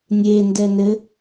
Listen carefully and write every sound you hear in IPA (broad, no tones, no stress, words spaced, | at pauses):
nʲendɛ nɘ